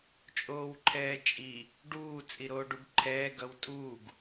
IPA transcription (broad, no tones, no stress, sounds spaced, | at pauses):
t͡ʃʼ oː w ǃʰ ɛː t͡ʃʼ i | ɖ uː t͡sʼ i ɾ oː ɖ u ɡ ǃʰ ɛː ɡ ʌ w tʼ uː ɡ